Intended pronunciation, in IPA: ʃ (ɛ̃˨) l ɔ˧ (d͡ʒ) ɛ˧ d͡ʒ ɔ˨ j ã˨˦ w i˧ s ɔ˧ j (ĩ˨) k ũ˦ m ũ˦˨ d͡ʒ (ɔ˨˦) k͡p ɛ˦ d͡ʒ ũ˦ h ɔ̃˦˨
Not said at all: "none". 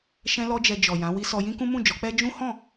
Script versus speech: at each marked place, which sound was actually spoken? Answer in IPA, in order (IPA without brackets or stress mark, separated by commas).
ɛ̃˧, d͡ʒ, ĩ˦, ɔ˨˦